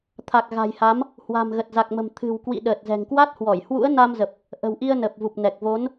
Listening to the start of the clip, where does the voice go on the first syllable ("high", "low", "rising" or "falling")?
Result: low